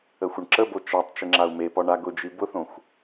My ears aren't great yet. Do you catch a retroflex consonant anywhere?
yes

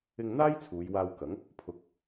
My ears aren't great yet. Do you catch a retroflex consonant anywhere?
no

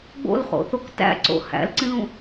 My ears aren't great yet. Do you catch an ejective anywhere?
no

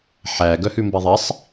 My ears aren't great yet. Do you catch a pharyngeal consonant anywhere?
yes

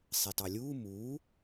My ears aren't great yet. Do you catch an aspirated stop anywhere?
no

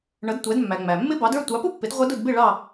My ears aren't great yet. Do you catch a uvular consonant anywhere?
yes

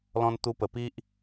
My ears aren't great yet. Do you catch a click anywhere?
no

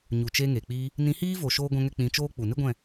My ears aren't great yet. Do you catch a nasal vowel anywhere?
yes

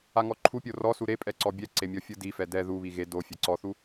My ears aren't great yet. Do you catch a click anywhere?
yes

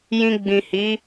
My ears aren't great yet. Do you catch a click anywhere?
no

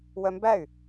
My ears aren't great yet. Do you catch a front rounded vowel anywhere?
yes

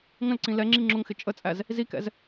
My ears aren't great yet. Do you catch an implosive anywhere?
no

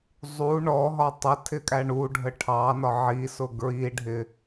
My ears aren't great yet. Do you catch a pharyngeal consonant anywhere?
yes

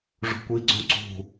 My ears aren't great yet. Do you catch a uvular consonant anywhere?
no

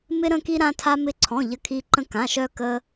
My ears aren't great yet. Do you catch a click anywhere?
yes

